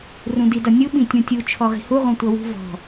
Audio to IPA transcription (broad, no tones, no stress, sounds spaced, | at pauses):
r ũ d i d ʌ nʲ u ɓ ĩ tʲ ũ tʲ u t͡ʃʰ ɔ ʁ i̤ h u ʁ ũ tʷ ʌ w ṳ v ɔ̤